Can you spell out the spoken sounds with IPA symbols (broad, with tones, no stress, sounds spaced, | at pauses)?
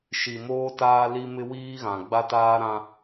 ʃ i˨ m oː˦ t aː˦ l i˦ m ɪ˦ w iː˦ ɣ ã˨ ɡ͡b a˦ t aː˦ ɾ ã˦